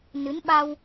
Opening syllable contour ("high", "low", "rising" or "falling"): rising